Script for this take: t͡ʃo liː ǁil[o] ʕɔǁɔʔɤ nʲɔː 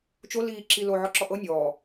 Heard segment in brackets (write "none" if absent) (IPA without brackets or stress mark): o